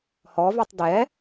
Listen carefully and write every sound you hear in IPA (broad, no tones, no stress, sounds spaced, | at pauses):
h ɔ v ʉ tˤ d ɛ